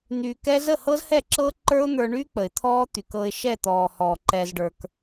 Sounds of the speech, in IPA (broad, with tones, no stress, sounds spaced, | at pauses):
n̪ yː˧ k ɛ˦ z ə˦˨ h ɤ˦ z h ɛ˦˨ ǁ ɤː˦ ǃ ə˞˦ ʊ̯ n̪ ə˞˧ ɳ yː˦ k͡p ə˨ ɪ̯ t̪ʰ ɔː˦ t̪ y˨ k ɤ˧ ɪ̯ ʃ ɛ˦˨ t̪ ɔː˨ h ɔː˨ ǃ ɛ˧ z ɖ ə˞˧ k